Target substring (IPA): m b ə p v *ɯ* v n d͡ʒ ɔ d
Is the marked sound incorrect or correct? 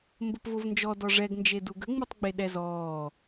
incorrect